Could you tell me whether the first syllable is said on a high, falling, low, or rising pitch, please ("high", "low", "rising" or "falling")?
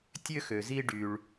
high